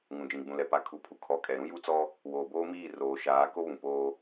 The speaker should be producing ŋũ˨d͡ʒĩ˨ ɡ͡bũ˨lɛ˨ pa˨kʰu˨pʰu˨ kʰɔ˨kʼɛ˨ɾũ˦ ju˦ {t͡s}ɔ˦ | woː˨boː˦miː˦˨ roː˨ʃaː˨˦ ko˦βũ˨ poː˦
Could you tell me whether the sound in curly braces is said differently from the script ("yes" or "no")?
no